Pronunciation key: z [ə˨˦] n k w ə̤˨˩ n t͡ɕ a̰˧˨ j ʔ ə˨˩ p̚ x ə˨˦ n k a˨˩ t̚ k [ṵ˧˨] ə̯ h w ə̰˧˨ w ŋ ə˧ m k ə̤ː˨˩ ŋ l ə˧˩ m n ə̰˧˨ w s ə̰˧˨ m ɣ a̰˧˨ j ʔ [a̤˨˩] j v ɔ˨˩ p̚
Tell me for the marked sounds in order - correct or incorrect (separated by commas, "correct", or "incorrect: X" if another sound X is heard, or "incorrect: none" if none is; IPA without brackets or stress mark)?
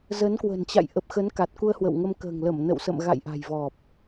correct, incorrect: u˧, correct